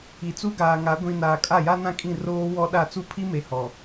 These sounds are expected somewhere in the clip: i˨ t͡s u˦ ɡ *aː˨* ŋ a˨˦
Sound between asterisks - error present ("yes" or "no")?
no